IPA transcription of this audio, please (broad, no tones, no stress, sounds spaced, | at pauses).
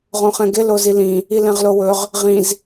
ʁ õ χ ɛ̃ ɡ ɪ l o z i l ĩ | i l ɛ̃ ʁ l o w ɵ ʁ | ʁ ĩ z